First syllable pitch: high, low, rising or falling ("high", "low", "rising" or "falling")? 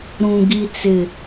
low